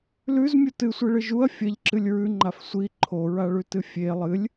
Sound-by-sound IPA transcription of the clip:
l ʉ z mʲ u t ɨ sʷ i ɭ ɨ ʒ u ɐ̯ fʲ ɐ ʎ ǁ ɨ lʲ ɹ ʉ ŋ͡ǃ a f sʷ i ǃʰ o ɹ a ɭ ʉ t ɨ fʲ e lˠ ɨ lʲ

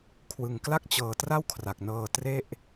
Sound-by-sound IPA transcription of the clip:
kʰ w ɯ˧ ŋ k l a˥˩ k̚ t͡ɕ ɤː˧ t r a˥˩ w kʰ r a˨˩ k̚ n ɤː˧ t r e˥˩ ʔ

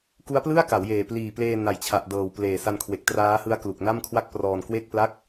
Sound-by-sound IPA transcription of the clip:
k u˦˥ a̯ p l ɯ˥˩ a̯ k a˩˦ w j eː˨˩ p l iː˨˩ p l eː˧ n a˨˩ j t͡ɕʰ a˨˩ ʔ d ɤː˨˩ w p l eː˨˩ s a˧ n kʰ w e˨˩ k̚ t r aː˦˥ h ɯ˦˥ a̯ k l u˨˩ k̚ n a˥˩ m kʰ w a˥˩ k̚ p r ɔː˧ n k w e˥˩ k̚ p l a˥˩ k̚

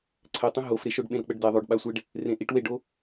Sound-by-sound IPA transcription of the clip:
ǀʰ ɛ tˤ ĩ ɦ o f ɾ e ʃ o ɖ ɓ ẽ ɾ ɤ k͡p ə ɖ d ɛ ðˤ o ɖ ɓ a sʷ e ɖ | r ẽ ʔ i ʈ w e ɖ o

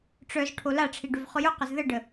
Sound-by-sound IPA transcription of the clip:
ʈ͡ʂ œ z ʈʰ o l a ʈ͡ʂʰ i ɖ ʏ v χ ʊ j ʊ q ə z ð ə ɖ ə

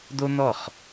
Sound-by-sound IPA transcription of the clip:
d̪ o˥ n̪ ɔ˥˩ χ

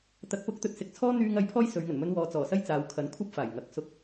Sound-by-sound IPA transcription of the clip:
t̪ ɐ˨˥ k̚ p ʊ˨˥ k̚ t̪ ɵ˨ t̚ s ɪ˧ k̚ t͡sʰ ɔː˥ n̪ yː˧ ŋ ɐ˨˥ j pʰ ɔː˥ j s ɵ˨˧ ɥ ŋ ɵ˨˩ n m ɵ˧ n w ɔː˨ t͡s ɔː˨˩ s ɐ˥ j t͡s aː˨˧ w kʰ ɐ˨˥ n kʷʰ ɐ˥ p̚ f aː˨˩ j ŋ ɐ˨˥ k̚ s ʊ˧ k̚

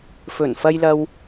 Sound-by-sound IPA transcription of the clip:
f ɵ˨˩ n f ɐ˧ j l ɐ˧ w

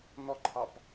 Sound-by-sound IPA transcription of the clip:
n̪ ɔ ǃʰ ɑ p

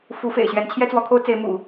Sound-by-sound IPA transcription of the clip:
f u˧˥ f ḛ˨˩ ɪ̯ ɕ ɥ ɛ˧˥ n t͡ɕʰ j ɛ˥ t͡s w ɔ˧˥ kʰ o˥ ʊ̯ t͡s e˧˥ ɪ̯ m ṵ˨˩˦

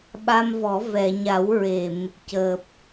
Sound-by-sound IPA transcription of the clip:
ɓ a˧ m v ɔ˨˩˦ v ɛ˨˩˨ ɲ a˨˩˦ w ɹ e˨˩˨ m | c əː˨˩ p̚

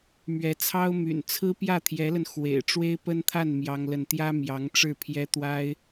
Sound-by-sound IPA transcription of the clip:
m ɥ ɛ˧˥ t͡sʰ ɑ˥ ʊ̯ m y̰˨˩ n t͡sʰ ɹ̩˥ p j ä˥˩ t̪ʰ j ɛ˧˥ l ə˧ n x w ḛ˨˩ ɪ̯ ʈ͡ʂ w e˥ ɪ̯ p ə˥ n t̪ʰ a˥˩ n m j ɑ˥ ŋ l ə˥˩ n t̪ j ä˥ m j ɑ˧˥ ŋ ʈ͡ʂ ɻ̩˥˩ pʰ j ɛ˥ t̪ w a˥ ɪ̯

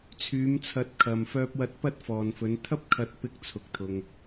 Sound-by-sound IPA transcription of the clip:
t͡sʰ yː˨˧ m t͡sʰ ɐ˨˥ t̚ kʰ ɐ˨ m f œː˨ p̚ w ɐ˨ t̚ p ɐ˨˥ t̚ f ɔː˨ n f ɵ˨˧ n t̪ʰ ɐ˥ p̚ kʰ ɐ˨ t̚ p ɪ˨˥ k̚ t͡sʰ ʊ˨ k̚ t̪ʰ ʊ˧ ŋ

